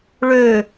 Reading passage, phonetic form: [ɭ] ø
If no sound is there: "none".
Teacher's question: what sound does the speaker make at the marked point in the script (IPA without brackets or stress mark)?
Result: ɭ